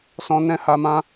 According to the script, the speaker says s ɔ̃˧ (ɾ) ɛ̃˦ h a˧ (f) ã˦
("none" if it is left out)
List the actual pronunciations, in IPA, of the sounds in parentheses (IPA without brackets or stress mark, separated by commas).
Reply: n, m